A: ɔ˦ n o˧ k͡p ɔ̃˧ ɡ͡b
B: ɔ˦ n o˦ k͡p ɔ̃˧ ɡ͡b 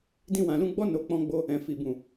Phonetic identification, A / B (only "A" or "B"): A